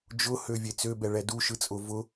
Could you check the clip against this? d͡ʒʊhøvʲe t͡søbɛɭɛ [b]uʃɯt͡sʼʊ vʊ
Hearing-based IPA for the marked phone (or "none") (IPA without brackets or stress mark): d